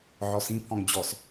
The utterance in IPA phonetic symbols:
ʕ ɔ s ĩ pʰ ɔ̃ ŋ d͡ʑ ɔ s

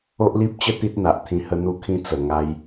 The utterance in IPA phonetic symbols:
o˦ ʔ l i˦ p̚ t͡ɕ ə˥˧ t̪ i˦ t̚ n̪ a˨ ʔ t̪ʰ ĩ˧ h ə˧ n̪ u˧ kʰ ĩ˧ t͡s ə˨˩ ŋ a˧ j

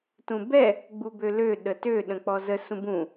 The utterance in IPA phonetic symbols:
t ũ b ɛ | ɡ͡b u b ø l ø ɗ ə t ø ɗ ə̃ k͡p ɔ z ə s ũ b ũ

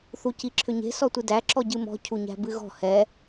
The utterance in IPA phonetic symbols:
θ u c i ǁʰ ʏ ɲ e̤ s ɔ tʷ ɨ d æ ǁ ɔ ɟ ɨ m ɔ̤ cʰ u ɲ æ̤ b ɨ ɣ ɔ̤ h ɛ

